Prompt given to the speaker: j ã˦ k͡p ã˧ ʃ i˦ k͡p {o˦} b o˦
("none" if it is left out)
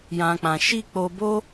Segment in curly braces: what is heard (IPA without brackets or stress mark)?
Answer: o˧